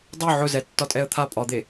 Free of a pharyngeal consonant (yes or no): no